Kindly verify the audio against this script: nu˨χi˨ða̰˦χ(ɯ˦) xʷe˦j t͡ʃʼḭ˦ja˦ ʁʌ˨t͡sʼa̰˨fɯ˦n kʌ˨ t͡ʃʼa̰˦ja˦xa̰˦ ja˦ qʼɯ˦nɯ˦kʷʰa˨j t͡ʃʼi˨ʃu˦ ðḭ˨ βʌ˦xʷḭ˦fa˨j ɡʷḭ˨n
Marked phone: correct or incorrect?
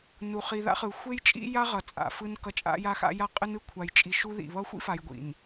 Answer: incorrect